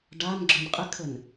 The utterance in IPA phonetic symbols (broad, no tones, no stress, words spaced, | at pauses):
ɖanɡ͡ǁœn qʼɪkʰən